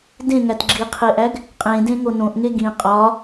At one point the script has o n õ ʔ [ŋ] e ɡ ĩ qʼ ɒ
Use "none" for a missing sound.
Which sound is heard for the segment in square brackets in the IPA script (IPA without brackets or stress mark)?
ŋ